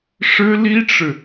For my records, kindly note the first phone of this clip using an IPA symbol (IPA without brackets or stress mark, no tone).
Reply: ʂ